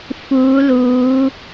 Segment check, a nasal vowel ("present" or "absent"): absent